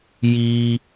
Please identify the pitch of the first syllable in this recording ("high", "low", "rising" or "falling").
high